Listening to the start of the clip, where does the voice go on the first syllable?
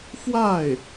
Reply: falling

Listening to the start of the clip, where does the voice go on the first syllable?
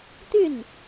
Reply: falling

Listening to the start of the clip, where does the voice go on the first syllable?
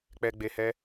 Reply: low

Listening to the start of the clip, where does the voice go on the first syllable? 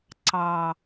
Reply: high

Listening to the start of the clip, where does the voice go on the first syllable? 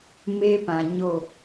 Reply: high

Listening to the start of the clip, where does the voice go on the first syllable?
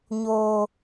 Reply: low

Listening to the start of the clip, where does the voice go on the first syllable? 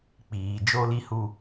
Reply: low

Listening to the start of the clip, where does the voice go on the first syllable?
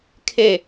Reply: falling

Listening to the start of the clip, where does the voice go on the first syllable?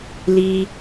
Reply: high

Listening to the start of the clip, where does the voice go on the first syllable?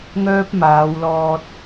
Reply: high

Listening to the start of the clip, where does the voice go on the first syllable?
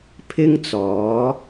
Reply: high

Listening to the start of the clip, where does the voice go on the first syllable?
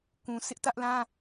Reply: low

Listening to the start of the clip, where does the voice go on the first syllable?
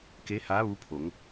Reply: rising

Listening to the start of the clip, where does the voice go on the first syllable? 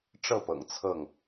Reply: falling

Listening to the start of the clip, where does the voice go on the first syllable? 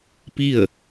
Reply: falling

